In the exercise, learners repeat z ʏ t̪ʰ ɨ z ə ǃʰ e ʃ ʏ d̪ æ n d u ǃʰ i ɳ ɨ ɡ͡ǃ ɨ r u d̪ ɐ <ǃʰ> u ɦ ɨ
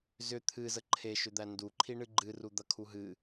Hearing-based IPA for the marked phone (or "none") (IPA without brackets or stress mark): kʰ